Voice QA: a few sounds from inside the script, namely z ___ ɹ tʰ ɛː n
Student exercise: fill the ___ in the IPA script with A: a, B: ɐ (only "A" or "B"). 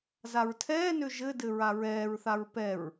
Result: A